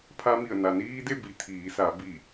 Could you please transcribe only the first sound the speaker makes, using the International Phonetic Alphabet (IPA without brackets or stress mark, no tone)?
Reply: pʰ